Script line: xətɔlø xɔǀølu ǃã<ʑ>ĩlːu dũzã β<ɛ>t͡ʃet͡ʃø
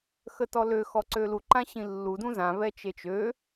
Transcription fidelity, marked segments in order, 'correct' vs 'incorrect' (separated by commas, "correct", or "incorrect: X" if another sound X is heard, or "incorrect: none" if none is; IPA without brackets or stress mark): incorrect: ɕ, correct